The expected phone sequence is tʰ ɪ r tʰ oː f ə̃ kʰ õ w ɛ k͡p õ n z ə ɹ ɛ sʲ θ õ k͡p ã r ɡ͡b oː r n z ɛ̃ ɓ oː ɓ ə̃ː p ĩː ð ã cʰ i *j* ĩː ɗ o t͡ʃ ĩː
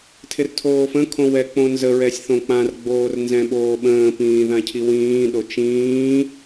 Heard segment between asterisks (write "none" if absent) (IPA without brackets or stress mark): w